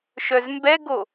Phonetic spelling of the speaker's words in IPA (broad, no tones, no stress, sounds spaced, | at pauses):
ʃ œ z m b ɛ ɡ o